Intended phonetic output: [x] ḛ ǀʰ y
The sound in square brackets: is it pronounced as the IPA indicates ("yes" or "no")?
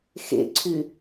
yes